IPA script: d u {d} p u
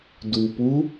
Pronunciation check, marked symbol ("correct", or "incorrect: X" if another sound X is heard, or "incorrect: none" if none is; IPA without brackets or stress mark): incorrect: none